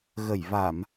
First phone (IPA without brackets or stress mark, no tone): ɣ